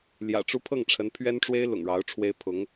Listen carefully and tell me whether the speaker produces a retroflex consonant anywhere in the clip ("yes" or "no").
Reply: yes